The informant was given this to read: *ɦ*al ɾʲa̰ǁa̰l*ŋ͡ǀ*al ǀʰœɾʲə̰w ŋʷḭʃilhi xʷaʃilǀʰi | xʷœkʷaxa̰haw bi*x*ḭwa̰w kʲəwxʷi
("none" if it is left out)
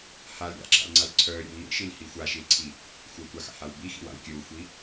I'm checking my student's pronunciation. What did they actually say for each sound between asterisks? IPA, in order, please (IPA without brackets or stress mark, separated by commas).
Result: h, ŋ͡ǀ, x